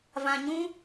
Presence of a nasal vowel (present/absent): present